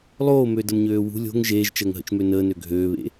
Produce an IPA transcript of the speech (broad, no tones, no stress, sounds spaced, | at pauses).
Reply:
lˠ oː m ø d ə m ɲ øː w ṳ lʲ o̤ ŋ ʒ eː ʒ t͡ʃ əː ŋ ɦ ə̰ t͡ʃ m ø n əː n ø ɡʱ øː β ḛ